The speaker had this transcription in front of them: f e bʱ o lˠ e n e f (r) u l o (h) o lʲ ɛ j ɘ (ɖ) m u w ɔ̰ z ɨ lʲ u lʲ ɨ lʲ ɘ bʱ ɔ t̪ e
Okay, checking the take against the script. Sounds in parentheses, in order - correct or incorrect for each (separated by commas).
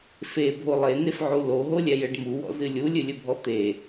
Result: incorrect, incorrect, correct